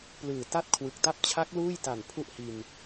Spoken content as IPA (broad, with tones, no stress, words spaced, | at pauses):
plɯː˨˩ta˥˩t̚ kʰwɯ˨˩k̚ta˥˩p̚ t͡ɕʰa˦˥k̚ luː˥˩jta˨˩n pʰu˥˩ʔhi˧n